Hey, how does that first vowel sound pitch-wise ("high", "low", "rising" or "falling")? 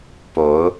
rising